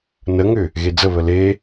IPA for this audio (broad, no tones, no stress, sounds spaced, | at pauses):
n ə ŋ ʏ | ɣ e d͡z ə β ə l e